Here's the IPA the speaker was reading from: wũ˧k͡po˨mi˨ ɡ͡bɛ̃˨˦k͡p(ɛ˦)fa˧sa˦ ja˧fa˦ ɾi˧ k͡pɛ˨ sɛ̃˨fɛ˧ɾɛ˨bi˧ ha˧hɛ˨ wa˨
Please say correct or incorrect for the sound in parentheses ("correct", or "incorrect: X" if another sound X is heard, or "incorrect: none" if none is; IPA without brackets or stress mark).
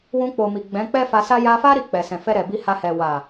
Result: correct